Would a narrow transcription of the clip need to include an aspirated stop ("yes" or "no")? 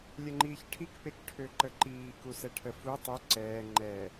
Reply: yes